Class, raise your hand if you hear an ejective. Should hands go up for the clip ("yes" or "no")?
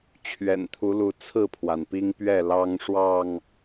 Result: no